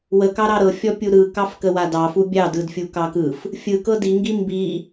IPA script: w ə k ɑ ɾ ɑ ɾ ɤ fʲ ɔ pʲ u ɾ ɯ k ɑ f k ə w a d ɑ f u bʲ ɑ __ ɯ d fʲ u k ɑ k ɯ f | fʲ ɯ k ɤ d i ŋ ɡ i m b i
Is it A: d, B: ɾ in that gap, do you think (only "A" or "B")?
A